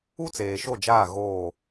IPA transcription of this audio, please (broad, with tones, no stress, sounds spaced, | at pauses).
u˦ t͡s eː˨ ʃ o˦˨ d͡ʒ aː˦˨ ɣ oː˦˨